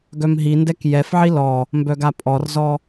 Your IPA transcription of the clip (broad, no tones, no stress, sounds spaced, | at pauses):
ɡ œ m ɦ i n d ɛ k j ɛ f ʕ i l ɔ | m b œ ɡ a pʼ ɔ r z ɔ